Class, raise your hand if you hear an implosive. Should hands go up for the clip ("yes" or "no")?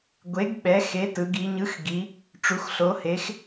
yes